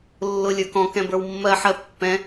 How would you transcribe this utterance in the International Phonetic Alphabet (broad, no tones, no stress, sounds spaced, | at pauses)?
lː ʊ lʲ ə˞ k ɔ̃ k ɛ̃ b ə˞ w mː ɜ ħ ɜ pː ɛ̃